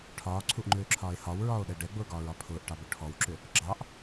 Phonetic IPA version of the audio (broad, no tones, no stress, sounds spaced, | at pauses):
ʈʰ ɒː ǀʰ u ʔ ŋ͡ǃ ʏː ǁʰ ɒː e̯ h ɒ w ɹ ɒː o̯ ɗ ɛ ɖ ɛ ɡ͡b ʊː ɡ ɒː ɹ ɒ pʰ ʊː ʔ ʈ ɑ b ʊ ʈʰ ɔ w ǁ ʏ | ɡ͡ǁ ɑ ʔ